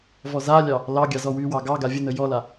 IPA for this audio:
v ɔ z a lʲ ɑ | l ɑ ɡʲ ɑ z ɔ w y w ɑ ɡ ɑ ɡ a vʲ ə n ə j ɔ l a

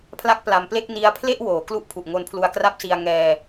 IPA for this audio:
pʰ l a˥˩ k̚ p l a˧ m p l e˥˩ k̚ n i˦˥ a̯ pʰ l e˥˩ ʔ w oː˩˦ k l u˦˥ ʔ pʰ u˨˩ ʔ ŋ o˧ n pʰ l u˧ a̯ k r a˥˩ p̚ s i˧ a̯ ŋ ɛː˧

